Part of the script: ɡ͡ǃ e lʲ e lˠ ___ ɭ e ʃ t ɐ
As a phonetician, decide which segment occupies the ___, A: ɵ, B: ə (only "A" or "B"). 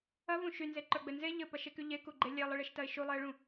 B